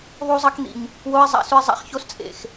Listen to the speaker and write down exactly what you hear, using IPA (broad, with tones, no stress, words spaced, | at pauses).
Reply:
ðˤu˦zˤɐ˦k n̪ḭ˨ɲ | wo˦ɪ̯ zˤa̰˦˨sʉ˦ɪ̯ zˤa̰˦χço˦s t͡sʼḛ˨x